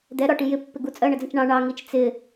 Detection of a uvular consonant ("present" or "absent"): absent